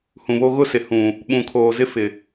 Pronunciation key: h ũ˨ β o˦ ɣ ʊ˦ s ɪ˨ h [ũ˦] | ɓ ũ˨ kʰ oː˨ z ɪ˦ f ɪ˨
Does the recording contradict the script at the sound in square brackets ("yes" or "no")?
yes